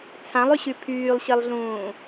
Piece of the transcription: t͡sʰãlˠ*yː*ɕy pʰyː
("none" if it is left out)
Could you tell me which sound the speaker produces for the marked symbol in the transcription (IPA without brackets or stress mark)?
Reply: y